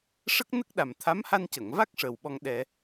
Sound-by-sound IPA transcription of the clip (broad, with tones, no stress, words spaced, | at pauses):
ʂə˦˥k̚nə˦˥k̚ɗa˨˩mt̪ʰa˧˥m ha˧ncə˨˩˨ŋva˦˥k̚ ʂəː˨˩wɓɔ˧ŋ ɗɛ˧